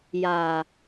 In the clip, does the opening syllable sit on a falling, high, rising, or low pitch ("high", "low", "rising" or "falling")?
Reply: low